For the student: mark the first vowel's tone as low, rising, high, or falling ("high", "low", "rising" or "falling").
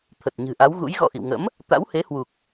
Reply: low